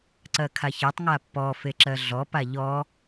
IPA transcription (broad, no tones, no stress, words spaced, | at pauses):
ǀɜkʰaçɜtˤŋa pːɔ feǁɜɮɔpa ʎɔ